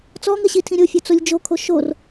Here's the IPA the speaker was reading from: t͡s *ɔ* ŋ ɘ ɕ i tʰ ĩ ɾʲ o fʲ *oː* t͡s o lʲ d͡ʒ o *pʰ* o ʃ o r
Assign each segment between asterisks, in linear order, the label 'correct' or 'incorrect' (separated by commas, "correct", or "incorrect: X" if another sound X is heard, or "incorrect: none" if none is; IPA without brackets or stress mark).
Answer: correct, incorrect: o, incorrect: kʰ